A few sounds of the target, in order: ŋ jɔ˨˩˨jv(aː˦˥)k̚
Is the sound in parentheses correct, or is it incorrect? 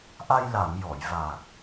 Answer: incorrect: aː˨˩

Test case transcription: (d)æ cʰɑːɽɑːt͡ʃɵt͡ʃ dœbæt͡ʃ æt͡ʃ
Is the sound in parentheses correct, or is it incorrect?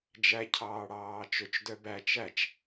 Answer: incorrect: d͡ʒ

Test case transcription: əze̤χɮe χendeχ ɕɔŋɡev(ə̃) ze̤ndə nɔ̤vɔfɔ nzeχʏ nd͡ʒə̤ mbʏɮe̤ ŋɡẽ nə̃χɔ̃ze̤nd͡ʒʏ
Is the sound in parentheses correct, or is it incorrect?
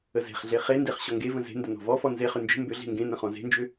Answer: correct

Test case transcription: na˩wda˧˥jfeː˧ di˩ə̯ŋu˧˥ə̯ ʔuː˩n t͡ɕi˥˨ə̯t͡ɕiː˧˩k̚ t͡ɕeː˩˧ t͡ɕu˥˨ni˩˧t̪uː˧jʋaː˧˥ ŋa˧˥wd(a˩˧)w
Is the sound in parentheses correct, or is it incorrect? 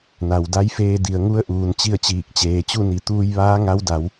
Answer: correct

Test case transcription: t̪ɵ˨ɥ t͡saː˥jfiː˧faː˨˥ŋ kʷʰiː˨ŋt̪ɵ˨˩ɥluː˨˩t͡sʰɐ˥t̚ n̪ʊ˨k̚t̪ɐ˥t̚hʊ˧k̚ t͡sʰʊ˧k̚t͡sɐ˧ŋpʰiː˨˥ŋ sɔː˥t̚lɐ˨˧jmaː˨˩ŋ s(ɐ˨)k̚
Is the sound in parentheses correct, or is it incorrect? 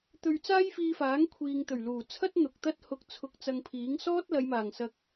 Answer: correct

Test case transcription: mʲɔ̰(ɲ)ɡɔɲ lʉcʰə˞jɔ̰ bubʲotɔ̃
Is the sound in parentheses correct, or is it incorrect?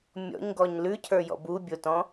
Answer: correct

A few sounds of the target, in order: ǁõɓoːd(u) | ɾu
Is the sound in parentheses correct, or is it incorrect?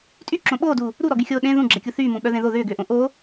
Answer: incorrect: uː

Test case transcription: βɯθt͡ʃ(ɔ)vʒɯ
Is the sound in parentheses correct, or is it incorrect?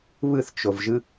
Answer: incorrect: o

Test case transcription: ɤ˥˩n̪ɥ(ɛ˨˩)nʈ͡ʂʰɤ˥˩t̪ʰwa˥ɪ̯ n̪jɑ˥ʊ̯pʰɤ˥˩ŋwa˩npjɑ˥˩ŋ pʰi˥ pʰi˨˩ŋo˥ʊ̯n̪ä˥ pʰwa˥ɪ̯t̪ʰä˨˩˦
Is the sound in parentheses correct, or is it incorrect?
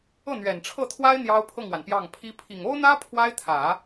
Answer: correct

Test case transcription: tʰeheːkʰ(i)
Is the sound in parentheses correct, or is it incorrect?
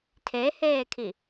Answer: correct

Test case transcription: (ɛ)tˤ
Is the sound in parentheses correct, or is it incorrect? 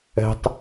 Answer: incorrect: ɛ̤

